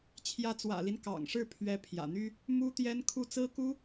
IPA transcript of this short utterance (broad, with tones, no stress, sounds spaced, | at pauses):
t͡ɕʰ j ä˧˥ t͡s w ä̰˨˩ l i˦ n k ɑ̰˨˩ ŋ ʂ ɻ̩˥˩ pʰ ɥ ɛ˧˥ pʰ j ä̰˨˩ n̪ y˥ | m u˥ t̪ j ɛ˥ n kʰ u˥˩ t͡s ɹ̩˥ k u˥